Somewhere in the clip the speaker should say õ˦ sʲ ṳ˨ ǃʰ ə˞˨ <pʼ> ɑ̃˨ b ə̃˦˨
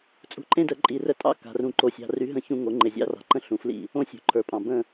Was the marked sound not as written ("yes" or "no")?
no